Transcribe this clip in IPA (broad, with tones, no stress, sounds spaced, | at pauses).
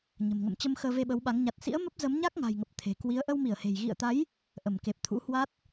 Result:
ɲ ə̤˨˩ m ŋ ə̰˧˨ m t͡ɕ ə˧ m x əː˧ v e˧ ɓ ə˨˦ w ɓ a˨˦ ŋ ɲ a˨˩ t̚ s ḭ˧˥ ə̯ m ə˦˥ p̚ z ə˨˦ m ɲ a˦˥ k̚ ŋ a̤˨˩ j ŋ ə˨˩ p̚ t̪ʰ e̤˨˩ k w i˨˦ ə̯ ʔ ə˧ w m i˧˩ ə̯ h e̤˨˩ j ɣ ḭ˧˨ ə̯ t̪ a˨˦ j | ʔ ə˧˩ m k e˨˩ p̚ t̪ʰ ṵ˧˥ h w a˦˥ t̚